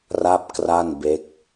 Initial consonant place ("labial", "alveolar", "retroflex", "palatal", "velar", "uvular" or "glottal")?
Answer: alveolar